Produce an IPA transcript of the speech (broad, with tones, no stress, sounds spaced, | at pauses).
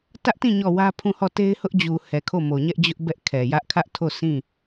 t ä˦ ʔ t ĩ˦˨ ɲ ɔ˦˨ w ä˦ pʰ ũ˦˨ h ɔ˦˨ t e˦ ɪ̯ h ʊ˦ ʔ d͡ʑ u˨ h ɛ˨ kʰ o˦˨ m o˨ ɲ ɛ˦ ʔ d͡ʑ ʊ˦ ʔ b ɛ˦ ʔ kʰ ɛ˨ j ä˦ ʔ kʰ ä˦ ʔ tʰ o˦˨ s ĩ˦˨